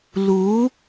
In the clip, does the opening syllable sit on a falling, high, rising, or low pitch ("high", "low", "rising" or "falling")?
rising